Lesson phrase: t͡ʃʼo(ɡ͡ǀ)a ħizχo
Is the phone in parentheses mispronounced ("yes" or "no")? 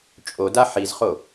yes